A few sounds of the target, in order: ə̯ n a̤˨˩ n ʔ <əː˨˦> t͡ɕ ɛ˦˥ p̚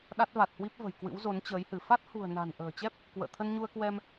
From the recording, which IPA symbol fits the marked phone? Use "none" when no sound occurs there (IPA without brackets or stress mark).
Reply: ə̤ː˨˩